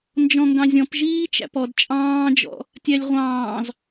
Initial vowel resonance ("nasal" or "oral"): nasal